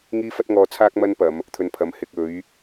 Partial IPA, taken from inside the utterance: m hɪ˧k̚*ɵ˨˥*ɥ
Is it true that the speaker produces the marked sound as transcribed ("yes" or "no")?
yes